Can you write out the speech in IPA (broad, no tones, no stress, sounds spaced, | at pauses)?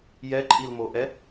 j ɛ ǃʼ i l m o ʔ ɛ